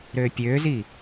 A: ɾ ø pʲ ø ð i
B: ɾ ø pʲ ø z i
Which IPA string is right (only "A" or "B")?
B